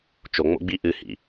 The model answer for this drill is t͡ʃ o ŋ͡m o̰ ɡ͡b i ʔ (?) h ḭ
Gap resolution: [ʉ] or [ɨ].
ɨ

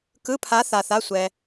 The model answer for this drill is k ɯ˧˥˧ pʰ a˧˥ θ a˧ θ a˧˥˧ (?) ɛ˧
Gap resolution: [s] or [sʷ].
sʷ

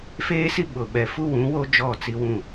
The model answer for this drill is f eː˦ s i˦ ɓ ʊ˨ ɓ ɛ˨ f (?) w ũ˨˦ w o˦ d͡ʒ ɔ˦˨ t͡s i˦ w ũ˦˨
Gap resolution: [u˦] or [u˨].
u˦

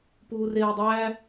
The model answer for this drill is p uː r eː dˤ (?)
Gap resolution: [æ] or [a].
æ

